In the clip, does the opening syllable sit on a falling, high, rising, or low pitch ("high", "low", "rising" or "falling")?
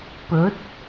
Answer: rising